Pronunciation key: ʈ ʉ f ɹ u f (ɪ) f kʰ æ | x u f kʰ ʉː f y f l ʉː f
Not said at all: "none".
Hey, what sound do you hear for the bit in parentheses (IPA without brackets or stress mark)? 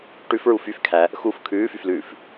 y